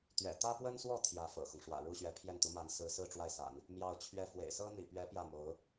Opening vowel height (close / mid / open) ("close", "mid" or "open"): mid